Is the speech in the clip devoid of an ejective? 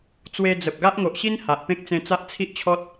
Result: yes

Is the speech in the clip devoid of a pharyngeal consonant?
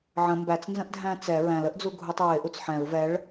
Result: no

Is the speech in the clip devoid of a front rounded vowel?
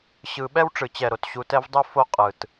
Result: yes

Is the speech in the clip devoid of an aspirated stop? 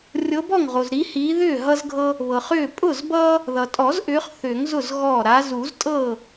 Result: yes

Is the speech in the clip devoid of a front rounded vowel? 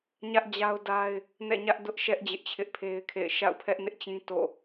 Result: yes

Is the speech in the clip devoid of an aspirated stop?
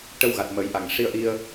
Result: yes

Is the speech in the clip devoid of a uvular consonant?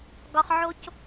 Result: no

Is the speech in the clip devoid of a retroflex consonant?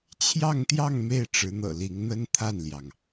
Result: no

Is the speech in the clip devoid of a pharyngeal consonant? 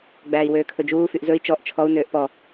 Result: yes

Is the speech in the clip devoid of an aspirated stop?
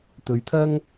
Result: no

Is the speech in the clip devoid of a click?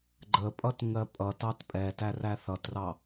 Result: no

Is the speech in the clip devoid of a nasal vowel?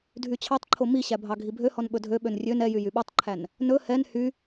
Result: yes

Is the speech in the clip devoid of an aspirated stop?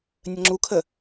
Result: no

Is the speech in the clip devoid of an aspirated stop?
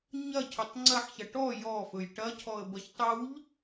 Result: no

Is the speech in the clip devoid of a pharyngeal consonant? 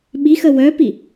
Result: yes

